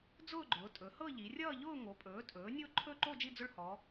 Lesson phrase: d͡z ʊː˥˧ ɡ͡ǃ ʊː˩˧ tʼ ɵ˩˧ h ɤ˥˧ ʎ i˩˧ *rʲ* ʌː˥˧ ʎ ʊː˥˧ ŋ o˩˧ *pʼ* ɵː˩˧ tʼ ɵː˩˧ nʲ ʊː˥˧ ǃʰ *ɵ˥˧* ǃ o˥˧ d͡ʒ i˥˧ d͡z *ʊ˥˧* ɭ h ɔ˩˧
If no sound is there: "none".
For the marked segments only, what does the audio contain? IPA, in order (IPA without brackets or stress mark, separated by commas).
rʲ, pʼ, ɵ˥˧, ʊ˥˧